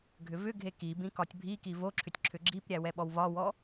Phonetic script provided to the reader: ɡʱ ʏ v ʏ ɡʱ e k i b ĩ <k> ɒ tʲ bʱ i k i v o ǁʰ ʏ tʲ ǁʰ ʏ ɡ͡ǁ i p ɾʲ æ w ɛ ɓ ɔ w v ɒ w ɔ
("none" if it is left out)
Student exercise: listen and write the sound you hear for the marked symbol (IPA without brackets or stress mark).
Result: k